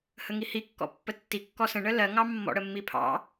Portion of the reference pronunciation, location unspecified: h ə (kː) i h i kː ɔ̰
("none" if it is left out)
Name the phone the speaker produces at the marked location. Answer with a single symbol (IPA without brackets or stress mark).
ŋ